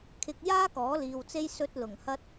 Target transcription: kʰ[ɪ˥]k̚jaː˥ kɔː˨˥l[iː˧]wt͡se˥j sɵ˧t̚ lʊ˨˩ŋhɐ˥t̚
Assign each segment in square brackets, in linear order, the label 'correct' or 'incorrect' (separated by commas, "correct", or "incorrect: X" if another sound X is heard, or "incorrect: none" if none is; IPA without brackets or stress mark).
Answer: incorrect: ɪ˧, incorrect: iː˨